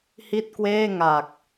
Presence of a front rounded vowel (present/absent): absent